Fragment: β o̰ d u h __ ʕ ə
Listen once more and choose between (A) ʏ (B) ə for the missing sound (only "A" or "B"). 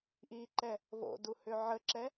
A